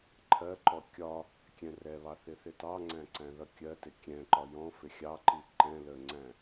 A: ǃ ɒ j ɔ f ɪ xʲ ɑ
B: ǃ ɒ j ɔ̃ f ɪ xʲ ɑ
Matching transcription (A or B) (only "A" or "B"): B